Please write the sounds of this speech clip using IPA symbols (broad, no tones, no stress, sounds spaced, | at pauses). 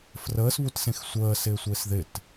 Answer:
f r əː s β u t s ẽ x sʷ əː s ɪː sʷ ɪː s ð ɪ t